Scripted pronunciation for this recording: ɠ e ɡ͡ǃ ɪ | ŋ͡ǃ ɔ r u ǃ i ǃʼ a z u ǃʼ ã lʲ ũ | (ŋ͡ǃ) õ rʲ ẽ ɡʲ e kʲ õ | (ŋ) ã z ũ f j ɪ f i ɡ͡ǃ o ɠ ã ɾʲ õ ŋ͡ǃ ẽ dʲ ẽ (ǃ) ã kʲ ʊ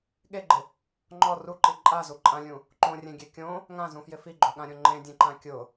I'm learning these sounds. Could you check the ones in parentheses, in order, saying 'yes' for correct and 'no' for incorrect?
no, yes, yes

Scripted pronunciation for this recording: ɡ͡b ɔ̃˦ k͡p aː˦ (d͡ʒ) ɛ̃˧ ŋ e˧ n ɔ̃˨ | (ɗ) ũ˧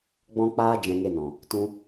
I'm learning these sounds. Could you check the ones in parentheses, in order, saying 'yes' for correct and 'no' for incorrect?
yes, no

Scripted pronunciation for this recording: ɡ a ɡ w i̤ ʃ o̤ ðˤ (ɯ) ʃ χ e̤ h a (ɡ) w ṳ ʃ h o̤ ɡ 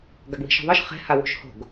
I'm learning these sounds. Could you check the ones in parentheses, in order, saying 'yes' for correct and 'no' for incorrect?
yes, no

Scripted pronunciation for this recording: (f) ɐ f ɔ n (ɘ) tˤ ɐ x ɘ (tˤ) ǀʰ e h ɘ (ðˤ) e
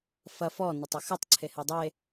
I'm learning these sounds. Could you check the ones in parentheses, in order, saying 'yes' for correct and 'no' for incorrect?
yes, yes, yes, no

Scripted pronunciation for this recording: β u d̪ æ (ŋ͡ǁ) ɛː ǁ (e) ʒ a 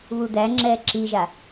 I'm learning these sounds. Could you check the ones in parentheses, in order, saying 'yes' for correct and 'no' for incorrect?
yes, no

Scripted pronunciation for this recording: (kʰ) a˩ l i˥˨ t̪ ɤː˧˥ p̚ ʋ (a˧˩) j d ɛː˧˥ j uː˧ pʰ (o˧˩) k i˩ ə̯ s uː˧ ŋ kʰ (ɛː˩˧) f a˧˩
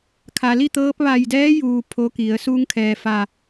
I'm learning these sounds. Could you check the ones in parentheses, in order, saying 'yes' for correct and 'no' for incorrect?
yes, yes, no, no

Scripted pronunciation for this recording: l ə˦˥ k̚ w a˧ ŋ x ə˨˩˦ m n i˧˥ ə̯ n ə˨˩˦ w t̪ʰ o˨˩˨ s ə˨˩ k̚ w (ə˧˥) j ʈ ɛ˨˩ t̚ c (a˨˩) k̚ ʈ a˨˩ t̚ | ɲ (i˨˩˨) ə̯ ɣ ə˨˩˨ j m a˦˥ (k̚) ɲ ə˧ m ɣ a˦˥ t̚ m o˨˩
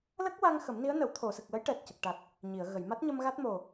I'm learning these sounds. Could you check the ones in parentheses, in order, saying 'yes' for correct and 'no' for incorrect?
yes, no, yes, no

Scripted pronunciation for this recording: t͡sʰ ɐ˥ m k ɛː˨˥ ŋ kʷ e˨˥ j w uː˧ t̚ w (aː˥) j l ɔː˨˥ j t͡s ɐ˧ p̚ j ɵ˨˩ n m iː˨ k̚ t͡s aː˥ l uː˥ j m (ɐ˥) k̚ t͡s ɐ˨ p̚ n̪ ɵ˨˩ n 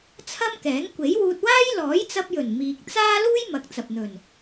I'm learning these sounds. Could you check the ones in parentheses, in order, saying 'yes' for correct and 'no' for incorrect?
yes, no

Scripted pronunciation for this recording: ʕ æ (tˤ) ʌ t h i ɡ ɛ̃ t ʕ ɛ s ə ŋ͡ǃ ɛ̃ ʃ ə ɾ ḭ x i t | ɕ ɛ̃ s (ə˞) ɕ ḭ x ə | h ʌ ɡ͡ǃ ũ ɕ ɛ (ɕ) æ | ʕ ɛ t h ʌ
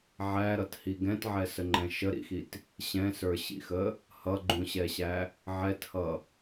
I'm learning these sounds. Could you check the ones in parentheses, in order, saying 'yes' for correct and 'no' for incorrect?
no, yes, yes

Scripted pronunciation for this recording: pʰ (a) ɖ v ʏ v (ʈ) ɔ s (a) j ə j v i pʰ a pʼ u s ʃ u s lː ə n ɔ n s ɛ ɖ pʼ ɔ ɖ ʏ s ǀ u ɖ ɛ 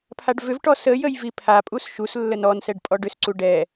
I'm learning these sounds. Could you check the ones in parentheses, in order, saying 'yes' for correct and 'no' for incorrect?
yes, yes, no

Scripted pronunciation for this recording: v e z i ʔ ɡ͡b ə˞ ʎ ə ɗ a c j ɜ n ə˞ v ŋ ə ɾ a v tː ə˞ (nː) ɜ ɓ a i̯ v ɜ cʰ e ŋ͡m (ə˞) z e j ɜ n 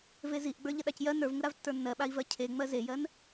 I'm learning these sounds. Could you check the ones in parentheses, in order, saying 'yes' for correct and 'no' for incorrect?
yes, no

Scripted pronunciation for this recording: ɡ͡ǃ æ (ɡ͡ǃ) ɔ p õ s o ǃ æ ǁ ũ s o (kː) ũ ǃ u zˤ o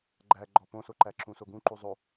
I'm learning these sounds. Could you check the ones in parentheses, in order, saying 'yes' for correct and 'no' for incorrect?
yes, no

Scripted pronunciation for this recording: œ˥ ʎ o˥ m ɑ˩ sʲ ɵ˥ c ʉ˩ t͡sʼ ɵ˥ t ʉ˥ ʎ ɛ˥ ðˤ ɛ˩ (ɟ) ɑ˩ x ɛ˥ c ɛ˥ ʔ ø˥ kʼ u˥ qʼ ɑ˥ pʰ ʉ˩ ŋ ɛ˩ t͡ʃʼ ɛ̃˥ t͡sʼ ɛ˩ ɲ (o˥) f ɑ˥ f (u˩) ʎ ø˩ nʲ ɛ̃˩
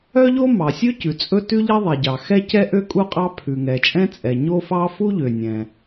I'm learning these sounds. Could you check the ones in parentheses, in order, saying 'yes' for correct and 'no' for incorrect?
yes, yes, no

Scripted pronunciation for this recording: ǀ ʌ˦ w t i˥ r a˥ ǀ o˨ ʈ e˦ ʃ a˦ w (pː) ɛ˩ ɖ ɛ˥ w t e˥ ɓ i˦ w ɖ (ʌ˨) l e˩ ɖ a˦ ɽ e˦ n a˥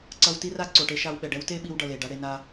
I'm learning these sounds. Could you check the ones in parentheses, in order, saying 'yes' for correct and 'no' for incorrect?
no, yes

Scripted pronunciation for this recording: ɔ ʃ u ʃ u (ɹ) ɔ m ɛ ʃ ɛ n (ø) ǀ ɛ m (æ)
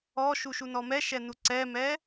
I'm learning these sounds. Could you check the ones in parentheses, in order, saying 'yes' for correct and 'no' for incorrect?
no, no, no

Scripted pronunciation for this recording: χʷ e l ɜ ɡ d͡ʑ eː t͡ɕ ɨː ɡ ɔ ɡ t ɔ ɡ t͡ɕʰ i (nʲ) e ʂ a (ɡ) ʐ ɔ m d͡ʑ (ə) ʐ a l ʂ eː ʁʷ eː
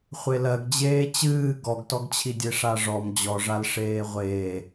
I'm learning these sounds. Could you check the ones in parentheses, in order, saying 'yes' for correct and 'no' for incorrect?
no, no, no

